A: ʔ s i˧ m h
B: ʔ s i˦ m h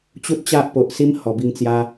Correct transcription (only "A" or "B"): B